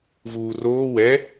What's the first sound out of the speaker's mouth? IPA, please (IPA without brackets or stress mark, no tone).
v